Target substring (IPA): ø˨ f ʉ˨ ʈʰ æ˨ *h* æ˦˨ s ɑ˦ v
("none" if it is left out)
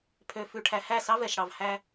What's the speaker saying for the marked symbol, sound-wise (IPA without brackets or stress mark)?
h